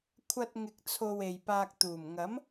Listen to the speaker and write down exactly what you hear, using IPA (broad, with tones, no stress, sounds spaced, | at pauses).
kʷʰ ɐ˧ t̚ ŋ ɪ˨ k̚ t͡sʰ o˨ w e˨ j p aː˧ k̚ t̪ uː˨˩ m ŋ ɐ˨˥ m